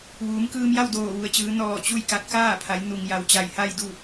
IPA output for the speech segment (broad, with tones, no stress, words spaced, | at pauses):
ʋuː˩˧mkɯː˧mja˥˨w doː˧˩ʋu˩ə̯t͡ɕɯː˩˧ nɔː˧˩ t͡ɕu˥˨j ka˧t̚ kaː˥˨pʰa˩˧j nu˩ŋ ja˩wt͡ɕa˧˩jha˥˨jdu˥˨